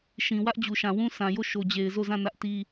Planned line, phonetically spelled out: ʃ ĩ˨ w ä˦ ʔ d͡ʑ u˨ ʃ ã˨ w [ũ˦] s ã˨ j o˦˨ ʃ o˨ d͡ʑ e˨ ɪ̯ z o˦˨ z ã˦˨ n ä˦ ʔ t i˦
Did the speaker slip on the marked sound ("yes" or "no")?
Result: no